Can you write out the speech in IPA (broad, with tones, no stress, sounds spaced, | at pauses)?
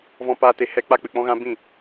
v ɔ̃˦ p aː˦ t e˧ h ɛ˦ k͡p a˦ k͡p ɨ˨ k͡p ɔ̃˦ ɣ ã˦ b ĩ˦˨